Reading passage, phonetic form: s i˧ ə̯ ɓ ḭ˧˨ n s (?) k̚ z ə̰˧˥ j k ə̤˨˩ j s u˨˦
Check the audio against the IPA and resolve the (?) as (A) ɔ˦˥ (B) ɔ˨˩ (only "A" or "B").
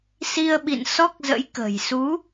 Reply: A